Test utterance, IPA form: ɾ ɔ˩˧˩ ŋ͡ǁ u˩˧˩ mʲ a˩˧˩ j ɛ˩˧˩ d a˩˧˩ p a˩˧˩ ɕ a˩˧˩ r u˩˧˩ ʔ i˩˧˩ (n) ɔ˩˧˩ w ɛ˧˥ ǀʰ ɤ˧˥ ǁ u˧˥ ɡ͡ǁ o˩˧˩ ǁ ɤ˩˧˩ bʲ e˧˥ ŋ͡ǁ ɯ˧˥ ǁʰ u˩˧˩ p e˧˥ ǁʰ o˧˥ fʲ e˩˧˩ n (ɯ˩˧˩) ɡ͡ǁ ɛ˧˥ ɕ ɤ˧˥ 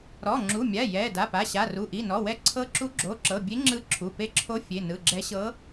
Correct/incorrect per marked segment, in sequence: correct, correct

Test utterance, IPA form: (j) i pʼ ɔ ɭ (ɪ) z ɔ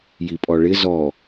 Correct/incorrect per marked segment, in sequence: correct, correct

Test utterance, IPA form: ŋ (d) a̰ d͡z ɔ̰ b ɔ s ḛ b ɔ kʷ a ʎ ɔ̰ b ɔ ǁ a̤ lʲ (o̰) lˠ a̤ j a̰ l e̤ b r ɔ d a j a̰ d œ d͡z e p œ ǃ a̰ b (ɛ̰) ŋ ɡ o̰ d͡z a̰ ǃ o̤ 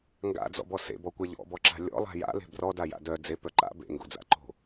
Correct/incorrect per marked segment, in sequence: incorrect, incorrect, incorrect

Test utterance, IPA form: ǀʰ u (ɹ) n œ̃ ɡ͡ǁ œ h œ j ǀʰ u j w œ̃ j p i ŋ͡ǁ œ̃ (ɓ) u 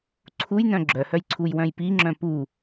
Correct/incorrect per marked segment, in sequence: incorrect, incorrect

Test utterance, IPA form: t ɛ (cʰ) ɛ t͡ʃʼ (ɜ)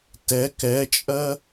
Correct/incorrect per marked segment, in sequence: incorrect, correct

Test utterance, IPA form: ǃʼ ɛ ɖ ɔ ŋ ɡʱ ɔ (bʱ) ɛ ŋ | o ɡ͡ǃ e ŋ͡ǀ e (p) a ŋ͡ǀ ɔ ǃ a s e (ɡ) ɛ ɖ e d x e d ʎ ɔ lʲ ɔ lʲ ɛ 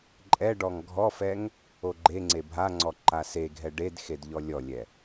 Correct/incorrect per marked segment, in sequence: incorrect, incorrect, incorrect

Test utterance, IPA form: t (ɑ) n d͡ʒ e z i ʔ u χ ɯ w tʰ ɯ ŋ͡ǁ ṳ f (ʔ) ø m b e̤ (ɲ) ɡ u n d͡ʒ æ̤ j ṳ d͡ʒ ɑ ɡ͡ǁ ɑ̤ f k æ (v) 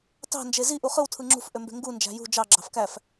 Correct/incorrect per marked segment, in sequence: incorrect, correct, incorrect, incorrect

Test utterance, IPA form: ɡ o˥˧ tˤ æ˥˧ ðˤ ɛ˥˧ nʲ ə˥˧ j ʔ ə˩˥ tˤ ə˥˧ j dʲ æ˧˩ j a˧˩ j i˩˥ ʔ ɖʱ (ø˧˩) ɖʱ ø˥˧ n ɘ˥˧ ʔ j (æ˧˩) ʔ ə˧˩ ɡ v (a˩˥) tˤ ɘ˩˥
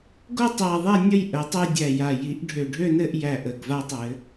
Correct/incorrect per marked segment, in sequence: correct, correct, incorrect

